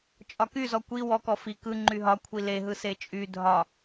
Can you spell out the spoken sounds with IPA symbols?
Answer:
t͡ʃʼɒkyzɔ kʷi wɔkɔ fi kɯ ŋ͡ǃyɦɒkʷʰi leɦɯ set͡ʃʼy dʱɒ

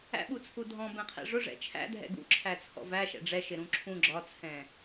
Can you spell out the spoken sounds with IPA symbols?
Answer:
æ̰ɓut͡sʰu dʱɔ̃bɛ̃qʰɛ̰ ʐʊʐɛ̰ t͡ʃʰæ̰dʱɛ̰ ɡṵǁʰæt͡sʰɔ̰ væʃɛ̰ ɖ͡ʐɛʃɪɾũ ǁʰũ ɡ͡ǁɒt͡sʰɛ̃

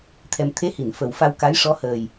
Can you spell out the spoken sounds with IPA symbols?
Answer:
t̪ʰɛ˧m t̪ʰe˧˥hi˨˩˨n fə˨˩w fa˧wka˧˥jʂɔ˧˥həː˨˩j

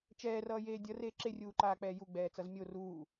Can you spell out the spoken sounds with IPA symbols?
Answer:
t͡ʃɛːrʌːjeː dʲʌreː ǁerʲuːǃaːk͡pɛː juɡ͡bɛːt͡sʌz mʲo ruː

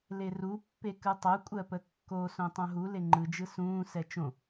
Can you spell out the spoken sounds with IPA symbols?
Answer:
leru pːekɯtˤo kʷʼɜpəkːo sõtˤõɦu leŋ͡ǃɯ d͡ʒɯsũː sɛt͡ʃõ

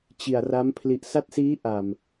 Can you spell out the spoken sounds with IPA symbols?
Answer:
t͡ɕi˨˩a̯ra˦˥m pʰli˨˩ʔsa˦˥t̚siː˦˥ ʔa˨˩m

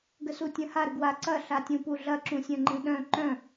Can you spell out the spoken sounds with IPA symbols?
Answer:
ɡəsutʲə̃ha ɾəɡwa ǀɐ ɬatʲũpuɮɐ ǁũsʲœ̃ŋ͡ǃĩɗœ̃ ǃœ̃

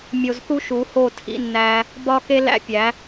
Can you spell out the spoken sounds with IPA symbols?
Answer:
mʲo˧zθu˦ ʃu˨˦ho˦˨ tʰḭ˦nːæ˦ | bɒ˦ke˦ læ̰˦ pʲæ˨˦

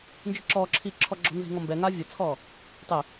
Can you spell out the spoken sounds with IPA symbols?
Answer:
nd͡ʒɨǁɔːǁʰiː ǁʰɔɡ͡ǁɔ̤nzi̤ŋɔ mbɛŋaː vʲɐt͡sʰɔː | tˤe

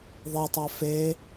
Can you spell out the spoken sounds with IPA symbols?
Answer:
ðˤetˤa fe

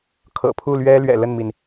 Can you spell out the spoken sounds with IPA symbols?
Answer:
kʰɤ̰˨˩pʰu˥˨lɥɛ˦ lɥɛ̰˨˩lə˥˨nmi˩n

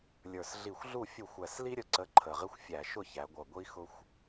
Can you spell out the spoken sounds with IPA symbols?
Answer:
lʲə˞˨˩sɮi˧˩˧xʷɮu˥˩ fʲu˧˩˧xʷæ˨˩sli˦ɾʲə˨˥ ǀə˨˥ǃʰə˨˩ʁɪ˦xʷ fʲæ˧˩˧ʃʊ˥˩çæ˩˧ɡʷʌ˨˩ ɡʷi˦xʊ˦xʷ

